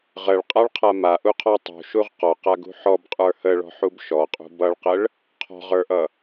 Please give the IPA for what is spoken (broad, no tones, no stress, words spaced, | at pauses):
ʁəɭqʼaɭqʰa maʔuqʰɔ tˤṳʃuʁ qɔqaɡṳ ħɔbqʼə˞ həɭɔ̤ħub ʃɔqʼṳ bʌɭqəɭ | qʰɔ̤ʁə˞ʔʌ